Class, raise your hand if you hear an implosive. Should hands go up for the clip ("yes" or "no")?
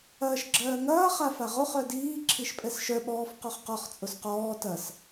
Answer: yes